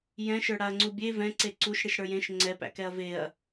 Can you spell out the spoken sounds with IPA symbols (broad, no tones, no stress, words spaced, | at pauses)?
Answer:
jɛ̃ʃə˞ ɽaɐ̯ŋ͡ǀubʲe vɛ̃ ǀeǀuʃ ɽiʃɽə˞jẽʃ ŋ͡ǀɛpæ̰kɛɐ̯ veɐ̯